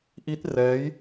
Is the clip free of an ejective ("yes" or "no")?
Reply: yes